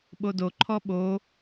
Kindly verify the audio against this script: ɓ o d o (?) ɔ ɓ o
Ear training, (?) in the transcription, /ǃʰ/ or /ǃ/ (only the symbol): ǃʰ